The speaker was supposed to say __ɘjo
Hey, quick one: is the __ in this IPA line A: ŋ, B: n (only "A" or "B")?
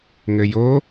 A